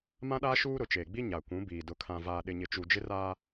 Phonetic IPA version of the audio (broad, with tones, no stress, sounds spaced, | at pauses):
m ã˦ ɗ aː˦ ʃ uː˦ ɾ ʊ˨ t͡ʃ eː˨ ɡ͡b i˦ ɲ a˨ kʷ ũ˨˦ b iː˨ d ʊ˨ kʰ ã˨ v aː˨ ɗ ɪ˨ ɲ ɪ˨ t͡ʃ u˨ d͡ʒ ɪ˦ r aː˦